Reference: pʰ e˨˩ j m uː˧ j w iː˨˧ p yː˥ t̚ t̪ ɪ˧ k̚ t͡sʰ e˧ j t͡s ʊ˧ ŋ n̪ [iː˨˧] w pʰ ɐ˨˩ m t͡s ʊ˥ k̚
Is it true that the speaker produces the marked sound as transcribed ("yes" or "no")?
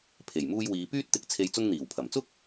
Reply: no